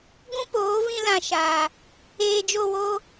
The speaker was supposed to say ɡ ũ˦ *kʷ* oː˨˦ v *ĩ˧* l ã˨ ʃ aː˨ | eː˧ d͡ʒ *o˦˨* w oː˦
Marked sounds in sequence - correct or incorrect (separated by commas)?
incorrect, correct, correct